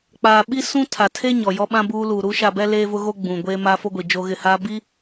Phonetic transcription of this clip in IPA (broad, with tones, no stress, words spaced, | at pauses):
k͡paː˨ ɓi˦ sũ˦ tʰa˨tʰe˦ ɲɔ˨jɔ˦ɓã˦ buː˦ luː˨ɾuː˦ʃa˦˨bɛ˦ leː˦vʊ˦ɣo˦ ɡ͡bũ˨ ɡʷeː˦ma˦fo˦ɡʷi˨ d͡ʒo˦ɣɪ˦˨haː˦ bi˦